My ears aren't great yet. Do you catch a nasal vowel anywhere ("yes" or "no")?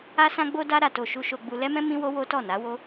yes